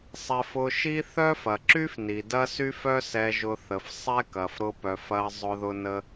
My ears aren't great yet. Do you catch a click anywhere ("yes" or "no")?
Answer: yes